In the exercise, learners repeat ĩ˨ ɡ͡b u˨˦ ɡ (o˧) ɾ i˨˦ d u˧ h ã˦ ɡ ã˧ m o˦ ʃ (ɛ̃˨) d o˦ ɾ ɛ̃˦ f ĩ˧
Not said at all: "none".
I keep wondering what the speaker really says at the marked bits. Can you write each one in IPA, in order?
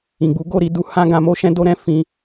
o˦˨, ɛ̃˦

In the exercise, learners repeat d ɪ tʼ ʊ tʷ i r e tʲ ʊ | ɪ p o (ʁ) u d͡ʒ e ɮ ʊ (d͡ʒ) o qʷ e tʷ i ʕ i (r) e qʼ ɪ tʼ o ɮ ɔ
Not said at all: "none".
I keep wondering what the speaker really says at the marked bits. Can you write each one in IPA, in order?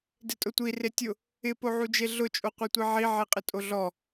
ʕ, t͡ʃʼ, ʕ

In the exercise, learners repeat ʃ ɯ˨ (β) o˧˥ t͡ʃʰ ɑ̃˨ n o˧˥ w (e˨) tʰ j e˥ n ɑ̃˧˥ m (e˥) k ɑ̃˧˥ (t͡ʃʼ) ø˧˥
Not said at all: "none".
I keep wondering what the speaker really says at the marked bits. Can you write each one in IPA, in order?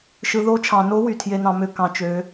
ð, y˨, ø˥, t͡ʃ

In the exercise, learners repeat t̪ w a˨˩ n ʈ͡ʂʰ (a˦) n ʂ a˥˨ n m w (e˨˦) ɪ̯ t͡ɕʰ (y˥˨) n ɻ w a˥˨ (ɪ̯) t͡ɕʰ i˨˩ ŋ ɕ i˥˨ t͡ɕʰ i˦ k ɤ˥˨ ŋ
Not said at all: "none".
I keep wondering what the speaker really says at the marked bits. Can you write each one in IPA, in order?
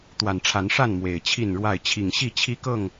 a˨˦, e˨˩, i˥˨, ɪ̯

